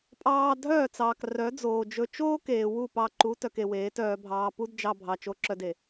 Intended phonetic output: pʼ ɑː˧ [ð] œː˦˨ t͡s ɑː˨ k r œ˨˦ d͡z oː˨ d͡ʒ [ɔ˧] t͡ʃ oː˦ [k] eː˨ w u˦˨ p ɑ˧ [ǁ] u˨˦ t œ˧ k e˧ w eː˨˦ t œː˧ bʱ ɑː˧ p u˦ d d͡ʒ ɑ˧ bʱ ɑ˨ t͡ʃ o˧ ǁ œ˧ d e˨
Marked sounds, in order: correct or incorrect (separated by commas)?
incorrect, incorrect, correct, incorrect